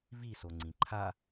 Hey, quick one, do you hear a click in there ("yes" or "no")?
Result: yes